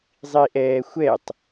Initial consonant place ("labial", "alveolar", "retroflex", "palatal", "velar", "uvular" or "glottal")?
alveolar